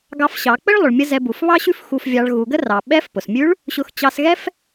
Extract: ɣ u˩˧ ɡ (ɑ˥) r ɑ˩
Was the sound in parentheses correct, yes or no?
no